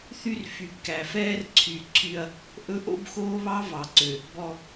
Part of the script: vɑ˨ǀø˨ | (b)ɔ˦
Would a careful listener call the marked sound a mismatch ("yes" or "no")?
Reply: no